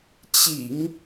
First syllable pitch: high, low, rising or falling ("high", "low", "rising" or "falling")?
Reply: low